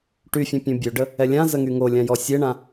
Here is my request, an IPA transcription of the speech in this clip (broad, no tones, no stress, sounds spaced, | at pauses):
ʈ y fʲ ə̃ pʲ ũ bʲ ø ɖ ə | ɛ lʲ ã z ə ŋ y ŋ o lʲ ã j ɔ sʲ e ɳ ã